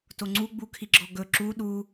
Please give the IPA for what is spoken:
t o ŋ͡ǀ u ɡ͡b u kʰ i ɡ͡ǁ ɔ ɡ ɵ ǁ u ɗ u

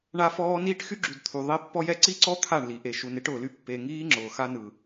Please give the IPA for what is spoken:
ɳ a˦ f ɔː˦ n iː˦ ʈ x y˦ ɡ͡ǁ y˨ d t̪ʰ u˨ ðˤ e˦ pː ɔ˦ j ɛ˦ ǀ i˦ ǀ ɔ˦ t̪ʰ a˦˨ ɳ l i˨ ʔ e˨ ʃ u˨ n e˦ ʈ ʊː˨ l y˦ pː e˨ ŋ iː˦ ŋ͡ǁ ʊː˨ x a˦ n ɯ˨

